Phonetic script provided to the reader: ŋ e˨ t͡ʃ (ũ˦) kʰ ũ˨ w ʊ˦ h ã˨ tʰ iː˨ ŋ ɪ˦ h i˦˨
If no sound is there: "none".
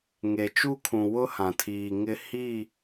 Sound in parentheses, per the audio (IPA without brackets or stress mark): u˦